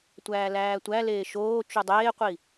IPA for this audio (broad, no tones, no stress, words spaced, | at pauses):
tʷæːlæːtʷæleː ʃoː t͡ʃudˤeːqʷi